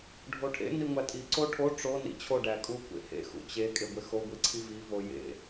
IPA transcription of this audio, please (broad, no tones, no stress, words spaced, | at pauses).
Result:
ɖʱoʈʰḛ niŋʷætʼi ǀoʈʰo ʈ͡ʂo nḭt͡ɕʰo ɖækʼukʷḛhḛ xṵt͡ɕe kʼeɡʷexo ɡʷiǀʰivi vojḛ